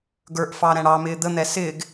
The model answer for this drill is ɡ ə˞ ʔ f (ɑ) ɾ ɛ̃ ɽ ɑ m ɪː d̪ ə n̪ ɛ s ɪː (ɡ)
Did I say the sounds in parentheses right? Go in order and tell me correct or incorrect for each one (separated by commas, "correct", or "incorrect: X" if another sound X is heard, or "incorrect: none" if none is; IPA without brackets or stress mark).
correct, correct